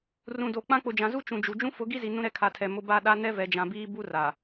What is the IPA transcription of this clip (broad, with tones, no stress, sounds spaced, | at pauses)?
r ũ˨ d o˨ k͡p ã˦ k͡p ʊ˨ d͡ʒ ã˨ z u˦ t͡ʃ ũ˨ d͡ʒ u˨ d͡ʒ ũ˦ f ʊ˨˦ ɡ i˦ z i˨ n ũ˦ ɾ ɛ˦ kʰ a˨ tʰ ɛ˨ m ʊ˦ b a˦ ɗ a˦ n ɛ˦ v ɛ˨ d͡ʒ ã˨ b iː˦ b u˦ r a˨